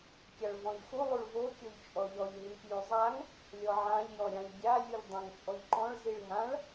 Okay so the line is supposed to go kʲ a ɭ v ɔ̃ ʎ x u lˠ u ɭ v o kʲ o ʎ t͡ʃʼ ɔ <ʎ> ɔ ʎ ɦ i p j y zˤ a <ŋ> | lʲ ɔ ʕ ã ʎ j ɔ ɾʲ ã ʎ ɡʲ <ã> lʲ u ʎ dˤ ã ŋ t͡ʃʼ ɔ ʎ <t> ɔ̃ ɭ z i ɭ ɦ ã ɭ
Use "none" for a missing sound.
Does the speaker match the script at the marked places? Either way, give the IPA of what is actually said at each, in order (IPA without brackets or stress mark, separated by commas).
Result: ʎ, ŋ, a, ǃ